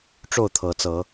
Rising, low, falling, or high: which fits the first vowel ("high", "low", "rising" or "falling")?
falling